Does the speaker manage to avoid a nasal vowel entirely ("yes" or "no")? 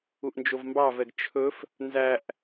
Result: yes